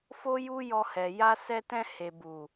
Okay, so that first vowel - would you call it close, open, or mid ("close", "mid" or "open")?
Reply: mid